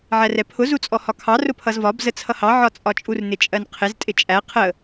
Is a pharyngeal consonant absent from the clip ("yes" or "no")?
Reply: no